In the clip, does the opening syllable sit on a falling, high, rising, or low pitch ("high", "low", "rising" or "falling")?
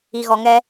low